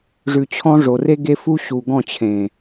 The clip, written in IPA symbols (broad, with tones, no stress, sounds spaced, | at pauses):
ʐ ʉ˨ t͡ɕʰ ɔ̃˦ ʐ o˨ r e˦ ɡ e˦ f u˦ ɕ u˨ ɡ ɔ̃˦˨ t͡ɕʰ ẽ˨